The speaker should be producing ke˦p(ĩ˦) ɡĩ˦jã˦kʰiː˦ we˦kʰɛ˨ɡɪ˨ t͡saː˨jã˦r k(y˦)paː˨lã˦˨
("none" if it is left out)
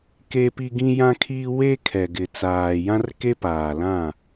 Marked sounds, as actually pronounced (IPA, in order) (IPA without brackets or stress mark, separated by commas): i˦, e˦